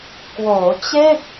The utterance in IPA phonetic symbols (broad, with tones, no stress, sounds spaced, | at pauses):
k w oː˩˦ t͡ɕ e˥˩ k̚